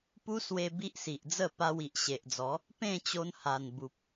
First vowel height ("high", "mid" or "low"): high